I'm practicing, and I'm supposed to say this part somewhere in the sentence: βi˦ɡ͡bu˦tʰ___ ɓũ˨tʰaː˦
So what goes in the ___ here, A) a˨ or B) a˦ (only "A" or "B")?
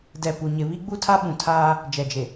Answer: B